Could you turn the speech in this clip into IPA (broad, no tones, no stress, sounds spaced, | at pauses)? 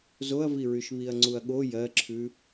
z o ɐ̯ v i ɹ y ʃ β i ɐ̯ ŋ͡ǀ u ɐ̯ ɠ o j ɜ ǁʰ ʉ